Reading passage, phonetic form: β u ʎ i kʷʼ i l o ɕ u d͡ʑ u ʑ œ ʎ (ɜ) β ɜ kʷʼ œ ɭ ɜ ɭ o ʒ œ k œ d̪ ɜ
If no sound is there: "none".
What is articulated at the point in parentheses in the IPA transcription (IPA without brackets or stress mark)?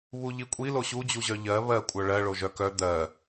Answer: ɜ